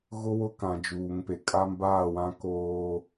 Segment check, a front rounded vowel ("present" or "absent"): absent